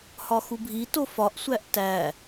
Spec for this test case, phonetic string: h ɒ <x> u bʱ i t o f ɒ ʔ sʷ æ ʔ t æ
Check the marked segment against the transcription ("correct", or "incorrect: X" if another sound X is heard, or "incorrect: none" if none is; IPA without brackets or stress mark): correct